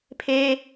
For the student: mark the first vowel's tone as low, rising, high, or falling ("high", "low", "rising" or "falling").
high